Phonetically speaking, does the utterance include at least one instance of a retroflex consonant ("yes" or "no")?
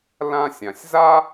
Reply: no